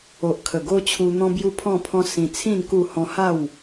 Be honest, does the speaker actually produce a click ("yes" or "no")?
no